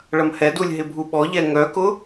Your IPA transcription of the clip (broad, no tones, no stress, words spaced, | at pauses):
ɭɐmhɛdulʲ ɦɪbʱuɓɔʎɛ ŋœkʊ